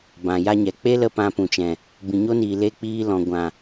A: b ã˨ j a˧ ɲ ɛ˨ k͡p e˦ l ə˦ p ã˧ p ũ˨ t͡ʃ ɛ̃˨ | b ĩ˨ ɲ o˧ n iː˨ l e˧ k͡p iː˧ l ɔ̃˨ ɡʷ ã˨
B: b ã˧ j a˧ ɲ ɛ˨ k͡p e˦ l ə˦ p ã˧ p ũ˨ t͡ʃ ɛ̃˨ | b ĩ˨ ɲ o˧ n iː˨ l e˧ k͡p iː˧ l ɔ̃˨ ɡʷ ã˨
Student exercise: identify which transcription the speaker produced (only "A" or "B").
A